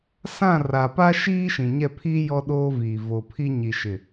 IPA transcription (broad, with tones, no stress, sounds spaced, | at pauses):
s ã˦˨ r a˨ p a˦ ʃ iː˦ ʃ ĩ˨ ɲ ɛ˦˨ pʰ iː˦ j ɔ˦ ɗ oː˦ v iː˨ v o˨ pʰ i˦ ɲ i˨ ʃ ɪ˨